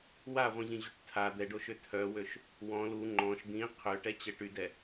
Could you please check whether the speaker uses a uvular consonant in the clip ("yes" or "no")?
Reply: yes